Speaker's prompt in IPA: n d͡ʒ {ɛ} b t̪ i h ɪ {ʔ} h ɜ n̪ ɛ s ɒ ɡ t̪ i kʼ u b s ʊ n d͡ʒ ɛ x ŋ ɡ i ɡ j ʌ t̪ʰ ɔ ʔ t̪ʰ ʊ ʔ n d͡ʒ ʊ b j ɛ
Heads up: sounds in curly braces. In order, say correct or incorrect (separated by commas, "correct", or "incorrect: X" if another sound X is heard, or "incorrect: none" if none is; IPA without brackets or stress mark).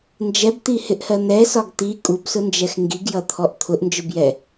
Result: correct, correct